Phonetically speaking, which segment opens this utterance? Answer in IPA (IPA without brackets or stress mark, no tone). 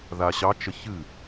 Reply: ð